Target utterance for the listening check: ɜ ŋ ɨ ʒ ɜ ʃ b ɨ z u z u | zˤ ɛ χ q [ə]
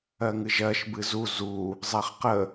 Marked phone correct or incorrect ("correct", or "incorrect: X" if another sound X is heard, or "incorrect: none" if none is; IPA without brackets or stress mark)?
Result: correct